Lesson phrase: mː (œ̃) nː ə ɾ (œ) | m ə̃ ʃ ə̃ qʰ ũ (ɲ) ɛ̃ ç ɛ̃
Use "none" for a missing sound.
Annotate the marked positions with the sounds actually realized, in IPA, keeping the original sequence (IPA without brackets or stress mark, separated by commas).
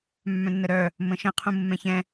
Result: œ̃, œ, mː